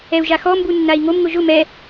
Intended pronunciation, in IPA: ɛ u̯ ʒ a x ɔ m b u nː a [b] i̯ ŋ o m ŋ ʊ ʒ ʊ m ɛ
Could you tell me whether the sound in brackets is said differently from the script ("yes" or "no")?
yes